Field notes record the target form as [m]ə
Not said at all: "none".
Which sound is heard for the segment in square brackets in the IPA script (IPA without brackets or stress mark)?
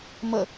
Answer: m